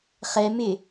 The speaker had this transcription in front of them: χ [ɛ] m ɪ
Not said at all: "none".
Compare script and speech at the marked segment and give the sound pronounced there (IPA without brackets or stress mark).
ɛ